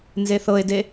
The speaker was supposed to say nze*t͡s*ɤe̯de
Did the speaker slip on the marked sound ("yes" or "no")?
yes